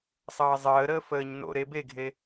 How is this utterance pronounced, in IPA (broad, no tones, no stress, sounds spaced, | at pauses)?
sˤ ʌː zˤ əː ɾ əː f əː ɲ n o̰ ɾ e b e ɡʱ e